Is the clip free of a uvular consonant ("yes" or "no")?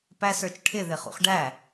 no